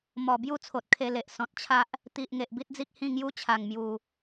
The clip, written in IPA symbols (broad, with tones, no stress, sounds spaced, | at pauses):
m ɔ˨˩ b j u˥˧ t͡sʰ o˨ t̚ kʰ e˧ l e˨ ʔ s ɔ̃˨ t̚ t͡ɕʰ a˦ ʔ | t̪ i˨ ʔ ŋ e˨ ʔ b i˦ t̚ d͡z i˦ k̚ h ĩ˥˧ ŋ j u˦ t͡ɕʰ a˨˩ ŋ m j u˨˩